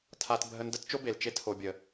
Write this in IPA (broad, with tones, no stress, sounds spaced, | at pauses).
tʰ a˦ t bʱ ə˦ n d ə˥ t t͡ʃ o˥ b e˩ l t͡ʃ e˥ tʰ o˨ bʲ ə˩